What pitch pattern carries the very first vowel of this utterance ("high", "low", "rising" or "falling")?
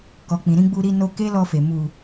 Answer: low